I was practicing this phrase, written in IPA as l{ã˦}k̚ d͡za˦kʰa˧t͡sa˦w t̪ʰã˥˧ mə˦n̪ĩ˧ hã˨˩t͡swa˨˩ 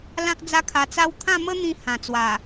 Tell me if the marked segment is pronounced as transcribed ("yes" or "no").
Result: yes